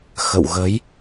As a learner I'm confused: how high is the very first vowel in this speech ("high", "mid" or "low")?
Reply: mid